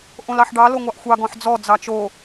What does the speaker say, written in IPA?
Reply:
ʔ õ l ɑ ħ ɖ ɑ l o ŋʷ ɑ ʔ xʷ ɑ ɡ ɔ̃ ħ d͡z ɔ d͡z ɑ t͡ʃ o

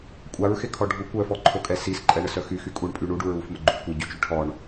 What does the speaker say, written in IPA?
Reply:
kʷʼ a ɹ x e kʰ ɔ ɖʱ u kʷ œ f ɔ ǃʰ o kʼ ɛ s i s ǃʼ ɛ ɳ ə s œ x y x y kʼ u ɳ pʼ y ɳ u ɖ u ɹ u f m ə ɡ͡ǃ u kʷ e ɟ y t͡ʃ y ʈʰ ɔ ɳ

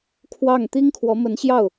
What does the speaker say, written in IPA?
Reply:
kʰ w ɑ˥˩ ŋ t̪ i˥ ŋ kʰ w ɔ˧˥ m ə˧˥ n ɕ j ɑ˥˩ ʊ̯

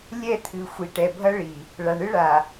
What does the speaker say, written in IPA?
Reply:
lʲ ɛ˦˨ t̪ʰ ɨ˨ xʷ i˨ ʈ ɛ˨ bʱ ɐ˦ ɭ i˨ | ɭ a˨ ɳ ɨ˦ ɭ a˨

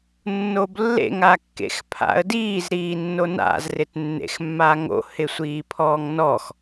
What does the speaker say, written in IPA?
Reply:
nː o b lː ḛ ŋ a kː ḛ x pʰ a̰ ə̯ d iː z ɾ iː nː o n a̰ z r ɪ t nː ḛ x mː a ŋ o̰ h ɪ sʷ iː pʰ ɔː ŋ n ɔ x

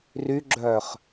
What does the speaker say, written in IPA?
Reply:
r y ɡ͡ǁ œː χ

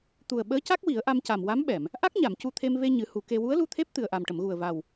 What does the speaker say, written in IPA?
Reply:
t̪ u˨˩ ə̯ ɓ əː˧˥ c a˦˥ k̚ w i˨˩˦ ə̯ ʔ a˧ m c a˨˩ m w a˧˥ m ɓ ɛ˨˩˨ m | ʔ a˦˥ k̚ ɲ a˨˩˨ m c u˧ t̪ʰ e˧ m v e˧ ɲ ɨ˨˩˦ h u˨˩˦ k e˧ w u˧˥ ə̯ l u˧ t̪ʰ e˦˥ p̚ t̪ ɨ˨˩ ə̯ ʔ a˨˩ m ʈ ə˨˩˨ m ɣ u˨˩ ə̯ v a˨˩ w

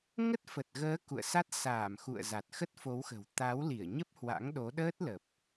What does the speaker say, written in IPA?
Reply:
ŋ ə˦˥ t̚ f ə˨˩ t̚ ɣ əː˨˦ k ṵ˧˨ ə̯ s a˦˥ t̚ s aː˧˩ m x ṵ˧˨ ə̯ z a˨˩ t̚ x ə˦˥ t̚ f o˨˦ w x ə̤˨˩ w t̪ a˨˦ w l i˧˩ ə̯ ɲ ə˦˥ p̚ h w a̰˧˥ ŋ ɗ o˨˦ ɗ əː˦˥ t̚ l ə˨˩ p̚

